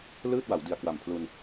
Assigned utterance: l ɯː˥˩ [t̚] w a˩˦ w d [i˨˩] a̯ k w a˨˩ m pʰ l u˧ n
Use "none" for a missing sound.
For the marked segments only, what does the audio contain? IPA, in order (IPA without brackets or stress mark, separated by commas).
t̚, i˨˩